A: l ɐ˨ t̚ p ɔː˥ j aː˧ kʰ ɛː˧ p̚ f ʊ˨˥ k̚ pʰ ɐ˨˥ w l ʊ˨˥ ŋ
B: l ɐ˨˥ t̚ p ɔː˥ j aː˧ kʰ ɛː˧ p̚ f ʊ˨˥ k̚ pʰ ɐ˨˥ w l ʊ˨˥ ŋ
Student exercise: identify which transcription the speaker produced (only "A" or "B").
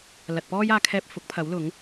A